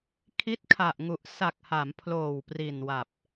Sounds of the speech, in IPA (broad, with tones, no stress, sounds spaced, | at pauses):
kʰ i˦˥ t̚ kʰ a˨˩ ʔ ŋ u˨˩ ʔ s a˨˩ k̚ h a˩˦ m pʰ l oː˨˩ w p r i˨˩ n w a˨˩ p̚